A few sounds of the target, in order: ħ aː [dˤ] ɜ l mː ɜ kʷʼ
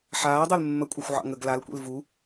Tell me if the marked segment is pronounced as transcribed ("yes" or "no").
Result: yes